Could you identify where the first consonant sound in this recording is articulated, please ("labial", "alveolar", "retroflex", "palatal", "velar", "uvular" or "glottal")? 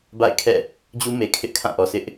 labial